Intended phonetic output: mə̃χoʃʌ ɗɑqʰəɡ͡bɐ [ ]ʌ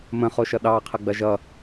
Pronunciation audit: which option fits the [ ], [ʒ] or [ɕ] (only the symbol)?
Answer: ʒ